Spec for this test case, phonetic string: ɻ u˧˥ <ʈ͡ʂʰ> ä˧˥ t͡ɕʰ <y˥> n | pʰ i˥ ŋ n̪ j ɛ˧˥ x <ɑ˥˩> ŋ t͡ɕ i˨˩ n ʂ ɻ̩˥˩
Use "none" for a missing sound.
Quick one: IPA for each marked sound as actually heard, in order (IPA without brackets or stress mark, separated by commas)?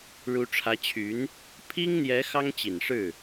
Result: ʈ͡ʂʰ, y˧˥, ɑ˥